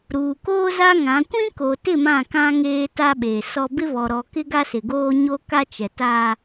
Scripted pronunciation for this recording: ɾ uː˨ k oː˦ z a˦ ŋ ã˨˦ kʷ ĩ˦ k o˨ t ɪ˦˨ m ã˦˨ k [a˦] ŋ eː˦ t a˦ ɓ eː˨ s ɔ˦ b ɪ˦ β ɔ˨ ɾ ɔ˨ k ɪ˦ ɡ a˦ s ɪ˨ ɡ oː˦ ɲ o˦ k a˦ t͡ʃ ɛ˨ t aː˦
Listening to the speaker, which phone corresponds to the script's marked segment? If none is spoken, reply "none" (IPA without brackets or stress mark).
ã˦